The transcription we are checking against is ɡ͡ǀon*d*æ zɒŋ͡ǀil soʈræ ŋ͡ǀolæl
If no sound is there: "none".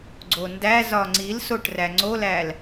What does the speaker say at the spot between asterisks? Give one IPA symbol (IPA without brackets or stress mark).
d